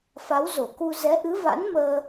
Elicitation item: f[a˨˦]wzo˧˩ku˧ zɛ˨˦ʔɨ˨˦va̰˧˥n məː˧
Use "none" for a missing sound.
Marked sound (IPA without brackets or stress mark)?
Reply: a˨˦